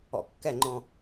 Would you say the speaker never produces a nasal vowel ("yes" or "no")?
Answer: no